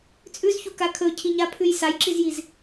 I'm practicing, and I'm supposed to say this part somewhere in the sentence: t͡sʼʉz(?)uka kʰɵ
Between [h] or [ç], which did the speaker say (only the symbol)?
ç